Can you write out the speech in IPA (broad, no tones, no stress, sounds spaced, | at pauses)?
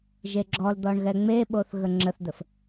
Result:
ʒ e ɡ͡ǁ ɔ l d̪ ɔ ɳ ɣ ɛ ŋ͡m e ɓ o θ ɣ ə ŋ͡ǁ ə θ d̪ ə f